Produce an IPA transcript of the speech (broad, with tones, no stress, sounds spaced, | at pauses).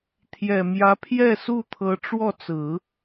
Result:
t̪ʰ j ɛ˨˩ m j ä˧˥ pʰ j ɛ˥˧ s u˥˩ t̪ʰ ɤ˧˥ ʈ͡ʂ w ɔ˥˩ t͡s ɹ̩˨˩˦